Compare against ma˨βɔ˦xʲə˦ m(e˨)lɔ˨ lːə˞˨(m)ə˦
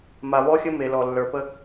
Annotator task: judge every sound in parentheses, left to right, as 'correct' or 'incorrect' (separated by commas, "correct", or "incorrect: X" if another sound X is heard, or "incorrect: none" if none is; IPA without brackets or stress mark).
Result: correct, incorrect: p